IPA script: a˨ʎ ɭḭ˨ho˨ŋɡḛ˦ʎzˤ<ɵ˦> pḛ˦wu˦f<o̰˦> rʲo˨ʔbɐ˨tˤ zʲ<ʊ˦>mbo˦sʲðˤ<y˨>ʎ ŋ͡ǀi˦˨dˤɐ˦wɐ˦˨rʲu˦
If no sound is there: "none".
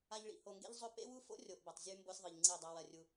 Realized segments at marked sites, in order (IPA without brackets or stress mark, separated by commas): ɵ˦, o̰˦, ʉ˦, ɨ˨